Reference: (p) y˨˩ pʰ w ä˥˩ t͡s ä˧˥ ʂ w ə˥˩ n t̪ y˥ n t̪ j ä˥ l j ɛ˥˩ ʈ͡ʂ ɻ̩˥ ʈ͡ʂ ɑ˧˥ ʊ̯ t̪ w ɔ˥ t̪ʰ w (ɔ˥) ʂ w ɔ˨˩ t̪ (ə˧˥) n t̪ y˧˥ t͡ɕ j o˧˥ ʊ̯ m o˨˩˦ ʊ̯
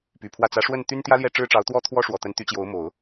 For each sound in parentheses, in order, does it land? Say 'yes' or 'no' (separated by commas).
yes, yes, yes